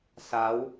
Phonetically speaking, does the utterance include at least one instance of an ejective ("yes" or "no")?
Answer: no